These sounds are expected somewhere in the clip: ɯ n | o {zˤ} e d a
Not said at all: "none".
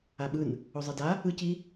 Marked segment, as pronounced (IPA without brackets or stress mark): zˤ